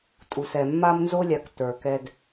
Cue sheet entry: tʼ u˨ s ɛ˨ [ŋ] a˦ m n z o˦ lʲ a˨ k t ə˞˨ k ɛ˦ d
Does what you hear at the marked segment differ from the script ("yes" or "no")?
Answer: yes